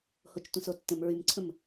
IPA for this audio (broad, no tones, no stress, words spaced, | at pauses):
hot͡ʃtʷə̃sotːə̃m ɹymǀʰə̃m